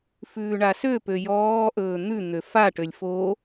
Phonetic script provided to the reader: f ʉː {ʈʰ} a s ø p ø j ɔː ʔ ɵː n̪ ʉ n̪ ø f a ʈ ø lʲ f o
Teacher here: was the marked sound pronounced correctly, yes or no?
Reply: no